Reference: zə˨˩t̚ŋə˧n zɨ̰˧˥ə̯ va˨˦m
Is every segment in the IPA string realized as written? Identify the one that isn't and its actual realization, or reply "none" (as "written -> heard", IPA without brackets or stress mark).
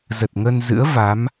none